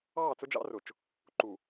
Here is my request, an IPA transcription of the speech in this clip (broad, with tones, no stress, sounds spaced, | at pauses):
ɑː˦˨ t͡s ʊ˦ d͡ʒ ɑ̰˦ r ʊ˨ t͡ʃ | ǃ u˨